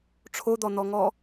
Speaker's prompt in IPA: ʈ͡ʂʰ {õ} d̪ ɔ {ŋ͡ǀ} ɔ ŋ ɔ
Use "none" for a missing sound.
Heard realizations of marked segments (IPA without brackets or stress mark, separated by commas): o, n̪